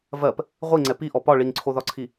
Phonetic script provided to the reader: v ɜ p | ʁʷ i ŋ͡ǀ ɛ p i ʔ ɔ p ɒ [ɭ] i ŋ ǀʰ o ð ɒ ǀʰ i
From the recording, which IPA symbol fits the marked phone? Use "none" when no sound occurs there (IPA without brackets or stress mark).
ɭ